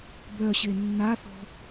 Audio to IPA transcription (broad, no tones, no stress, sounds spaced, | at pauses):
b œ ɕ e nː a θ ɔ̤